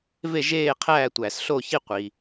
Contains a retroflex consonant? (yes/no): no